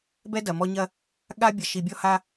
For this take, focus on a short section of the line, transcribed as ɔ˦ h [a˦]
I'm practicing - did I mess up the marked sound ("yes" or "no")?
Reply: no